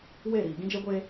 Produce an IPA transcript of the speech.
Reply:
w e˦˨ ɾ iː˨ ɡ ĩ˦ d͡ʒ e˦ ɡʷ eː˦

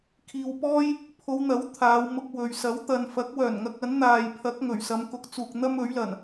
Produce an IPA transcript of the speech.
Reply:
kʰ iː˨ w p ɔː˥ j | pʰ o˨˧ w n̪ ɐ˨˥ w t̪ʰ aː˨˧ w m ʊ˧ k̚ w ɵ˨ ɥ s ɐ˨˥ w t̪ ɐ˨ n f ɐ˨˥ k̚ w œː˨˩ n ŋ ɐ˧ k̚ ɐ˨˥ n n̪ aː˨ j pʰ ɐ˨˥ k̚ ŋ ɵ˨˩ ɥ s ɐ˨˧ m k ʊ˨ k̚ t͡s uː˨ k̚ n̪ ɐ˥ m ɵ˨˥ ɥ l ɐ˨˩ n

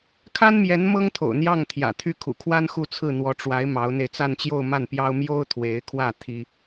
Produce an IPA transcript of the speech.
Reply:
kʰ a˥ n m j ɛ˧˥ n m ɤ˥ ŋ t̪ʰ o̰˨˩ ʊ̯ n̪ j ɑ˥˩ ŋ t̪ʰ j ä̰˨˩ t̪ʰ y˥˩ kʰ ṵ˨˩ kʰ w a˥ n x u˥˧ t͡sʰ ɹ̩˥˩ n̪ w ɔ˧˥ ʈ͡ʂ w a˧˥ ɪ̯ m ɑ˧˥ ʊ̯ n̪ e˧ ɪ̯ t͡s a˥˧ n t͡ɕ j o˥˧ ʊ̯ m a˥˩ n p j ɑ˥ ʊ̯ m j o˥ ʊ̯ t̪ʰ w e˧˥ ɪ̯ kʰ w ä˥˩ t̪ʰ i˥

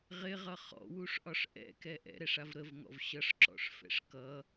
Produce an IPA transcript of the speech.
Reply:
ʁ ɪ ʁ ʌ χ ɔ̰ w u ʂ ʔ ɒ ʂ ʔ ɛ̰ k ɛ ʔ ɛ̰ ɾ ɛ ʂ a v ɾ ə v ŋ ɔ̰ v ɕ ʌ ʂ ǁ ɔ̰ ʂ f ɛ̰ ʂ k ʌ

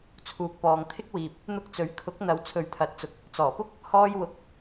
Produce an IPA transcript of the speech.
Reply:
t͡sʰ uː˨ k̚ p ɔː˨ ŋ t̪ʰ ɪ˥ k̚ w iː˨ p̚ | n̪ ʊ˧ k̚ t͡s ɵ˨˥ ɥ kʰ ʊ˨˥ k̚ n̪ ɐ˨˧ w t͡sʰ ɵ˨˧ ɥ t̪ʰ ɐ˨ t̚ t͡s ʊ˨ k̚ | t͡s ɔː˨˩ p ʊ˥ k̚ | h ɔː˧ j w ʊ˨ k̚

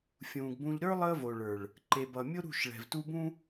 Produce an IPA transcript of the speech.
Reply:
fʲ ũː˨ ɡ b ũ˨ ʎ ɾ ə˞˦ lˠ əː˦ v o˨ ɭ ə˞˨ ɭ | ǃ e˨ b ʌ˨ mʲ ʊ˦ ɾ ṳ˦˨ ʃ ɭ ɛ̤˨ v t u˦ b ũ˦

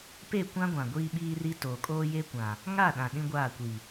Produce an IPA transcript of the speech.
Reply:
p e˦˨ kʷ ã˦ ɡʷ ã˨ ɡʷ iː˦ ɓ iː˦ r i˦ t oː˨ kʼ oː˦ j e˦ kʷ ã˨ | ŋ a˦˨ ɗ ã˨ ɗ ĩ˦ ɡʷ aː˦˨ kʷ i˨

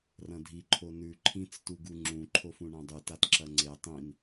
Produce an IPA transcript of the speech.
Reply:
r ɐ̃ dʱ i ǃʰ o n ʉ ǃʰ ĩ t͡s t u ɡ u ŋ͡ǁ ũ ǃʰ o f ũ ɳ ã dˤ ʉ t a t ǁ ɐ ŋ͡ǀ e tˤ ĩ n

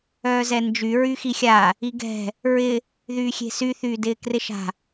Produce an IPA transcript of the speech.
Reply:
œː z ɛ n d͡ʒ y ɹ y x i xʲ a | i ɡ ɛ̤ | ɹ ɪ | ð yː xʲ e̤ s y θ yː d ɪː k r ɪ ʃ a̤

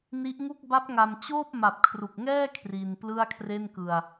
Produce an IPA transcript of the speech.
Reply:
n i˦˥ ʔ ŋ u˥˩ k̚ b a˦˥ p̚ ŋ a˧ m t͡ɕ oː˥˩ p̚ m a˨˩ p̚ kʰ r u˨˩ k̚ ŋ ɛː˥˩ kʰ r i˧ n p l ɯ˥˩ a̯ kʰ r e˥˩ n k ɯ˧ a̯

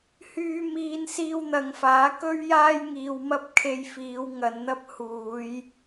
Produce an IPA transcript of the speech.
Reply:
h yː˧ m iː˧ n s iː˧ w n̪ ɐ˨˧ ŋ f aː˨˥ k ɵ˥ ɥ j aː˥ j ŋ iː˧ w m ɐ˥ p̚ kʰ e˧ j f iː˨˧ w ŋ ɐ˨˧ n n̪ ɐ˥ p̚ h uː˨˧ j

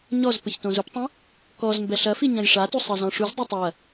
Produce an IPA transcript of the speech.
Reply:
ɲ ɔ z p ɘ ç t õ z u p tˤ ɐ̃ | k ɔ z m b ɛ ɬ ɐ f i ɲ ɐ̃ j ʂ a t u sˤ ɘ z ɔ̃ ʂ u z dˤ e tˤ ɐ

